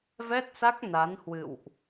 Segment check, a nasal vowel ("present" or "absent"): absent